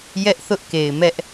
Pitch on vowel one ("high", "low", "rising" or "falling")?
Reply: high